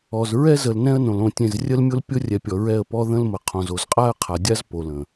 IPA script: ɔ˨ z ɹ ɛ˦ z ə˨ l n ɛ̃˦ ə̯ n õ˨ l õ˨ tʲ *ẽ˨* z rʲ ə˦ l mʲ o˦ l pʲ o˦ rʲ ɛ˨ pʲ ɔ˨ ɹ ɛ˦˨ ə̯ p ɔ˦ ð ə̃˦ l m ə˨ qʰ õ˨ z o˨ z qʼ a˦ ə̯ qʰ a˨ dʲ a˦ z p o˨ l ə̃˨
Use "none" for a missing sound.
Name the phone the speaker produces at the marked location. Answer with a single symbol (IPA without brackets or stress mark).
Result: ẽ˨